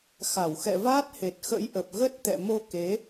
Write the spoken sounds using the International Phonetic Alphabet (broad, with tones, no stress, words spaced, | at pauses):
xa˧˩wxɛ̰˧˨vaː˦˥t̚he˨˩t̚ xə̰˧˥jʔə˨˩p̚ ɣə˦˥t̚t̪ɛ̰˧˨ mo˧ke˨˦